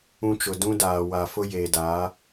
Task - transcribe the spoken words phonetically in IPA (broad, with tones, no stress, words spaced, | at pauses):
ũ˦t͡ʃʊ˨ dũ˦daː˨ wa˨ fʊ˦jeː˨daː˨˦